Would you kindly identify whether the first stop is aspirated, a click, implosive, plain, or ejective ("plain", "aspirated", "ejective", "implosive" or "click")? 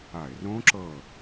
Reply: click